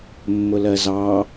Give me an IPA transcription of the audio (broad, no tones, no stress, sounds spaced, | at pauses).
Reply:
mː ʊ l ɜ z ɑ